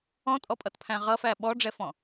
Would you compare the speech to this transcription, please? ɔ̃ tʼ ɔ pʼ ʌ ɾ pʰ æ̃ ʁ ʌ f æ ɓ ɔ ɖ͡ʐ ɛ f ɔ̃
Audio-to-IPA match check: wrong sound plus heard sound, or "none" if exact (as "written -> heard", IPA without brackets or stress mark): ɾ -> t